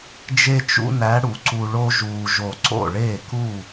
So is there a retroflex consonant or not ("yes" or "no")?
yes